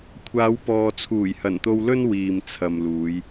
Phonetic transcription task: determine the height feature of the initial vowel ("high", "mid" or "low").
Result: low